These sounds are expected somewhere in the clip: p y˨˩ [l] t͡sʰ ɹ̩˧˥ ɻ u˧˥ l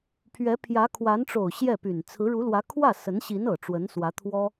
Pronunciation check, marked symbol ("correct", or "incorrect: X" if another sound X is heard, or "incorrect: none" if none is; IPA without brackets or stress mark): incorrect: n